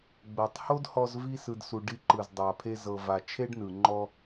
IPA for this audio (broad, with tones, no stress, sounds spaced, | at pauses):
ɡ͡b ɤ˨ tˤ h o˦ d h ɔ˧ z v i˧ s ɯ˧ d s u˧ ɖ i˧ ǃ ɯ˨ z dˤ a˨ pʰ e˧ z ɤ˨ v a˨ t͡ʃʰ e˦ ɖ n ɯ˨ ŋ͡ǃ ɔ˧